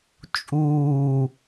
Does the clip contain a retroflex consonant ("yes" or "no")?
no